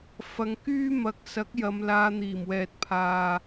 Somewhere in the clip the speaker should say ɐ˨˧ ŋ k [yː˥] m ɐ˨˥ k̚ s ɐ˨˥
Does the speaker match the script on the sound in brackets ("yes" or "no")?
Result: yes